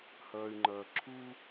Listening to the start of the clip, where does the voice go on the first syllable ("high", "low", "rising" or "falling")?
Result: low